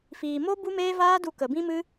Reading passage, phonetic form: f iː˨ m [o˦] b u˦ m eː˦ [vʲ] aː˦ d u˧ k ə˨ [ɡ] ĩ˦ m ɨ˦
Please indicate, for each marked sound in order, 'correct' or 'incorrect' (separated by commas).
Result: correct, incorrect, incorrect